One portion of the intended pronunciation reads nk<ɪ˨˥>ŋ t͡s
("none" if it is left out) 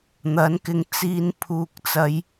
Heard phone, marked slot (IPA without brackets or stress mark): ɪ˧